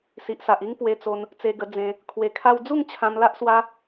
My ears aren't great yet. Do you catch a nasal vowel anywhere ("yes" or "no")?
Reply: yes